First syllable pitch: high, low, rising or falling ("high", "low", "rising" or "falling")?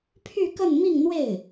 falling